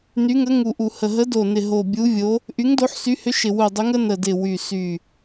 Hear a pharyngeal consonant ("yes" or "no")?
yes